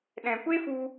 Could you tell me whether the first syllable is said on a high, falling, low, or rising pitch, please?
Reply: low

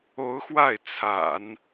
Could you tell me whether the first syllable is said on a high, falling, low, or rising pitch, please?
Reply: rising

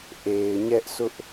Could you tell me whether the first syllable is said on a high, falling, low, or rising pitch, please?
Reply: low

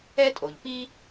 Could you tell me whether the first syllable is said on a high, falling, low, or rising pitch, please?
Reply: high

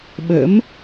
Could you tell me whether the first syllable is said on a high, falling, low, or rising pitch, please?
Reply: rising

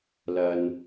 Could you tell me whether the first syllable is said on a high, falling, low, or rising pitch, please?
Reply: low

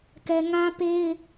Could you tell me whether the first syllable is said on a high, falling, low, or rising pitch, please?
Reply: high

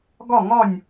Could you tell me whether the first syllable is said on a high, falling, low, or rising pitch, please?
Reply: falling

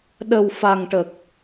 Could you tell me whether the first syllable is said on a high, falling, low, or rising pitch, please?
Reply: low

